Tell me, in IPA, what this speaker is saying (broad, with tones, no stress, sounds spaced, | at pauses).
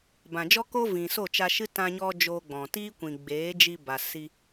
b ã˨ d͡ʒ ɔ˦ k oː˦ v ĩ˨ s o˦˨ t͡ʃ a˧ ʃ ɨ˦ t ã˧ ɲ ɔ˧ d͡ʒ oː˧ ɡ͡b ɔ̃˨ t iː˦ kʷ ĩ˨ ɡ͡b eː˨˦ d͡ʒ i˧ b a˨ s i˧